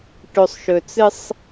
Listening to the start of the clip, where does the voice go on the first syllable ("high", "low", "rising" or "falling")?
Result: low